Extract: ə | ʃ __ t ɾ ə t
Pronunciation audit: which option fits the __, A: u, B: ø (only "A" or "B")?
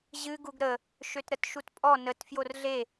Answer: B